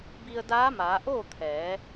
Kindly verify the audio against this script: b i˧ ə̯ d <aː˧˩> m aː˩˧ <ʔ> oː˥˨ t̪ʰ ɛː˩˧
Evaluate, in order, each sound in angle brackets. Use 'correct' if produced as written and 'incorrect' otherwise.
incorrect, correct

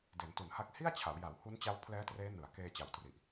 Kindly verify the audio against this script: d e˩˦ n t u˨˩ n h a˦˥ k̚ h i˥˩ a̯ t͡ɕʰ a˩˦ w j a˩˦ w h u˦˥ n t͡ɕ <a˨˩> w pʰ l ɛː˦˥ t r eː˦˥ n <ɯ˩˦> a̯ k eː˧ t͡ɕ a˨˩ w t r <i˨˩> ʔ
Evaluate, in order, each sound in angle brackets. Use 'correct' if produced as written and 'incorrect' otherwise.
incorrect, correct, correct

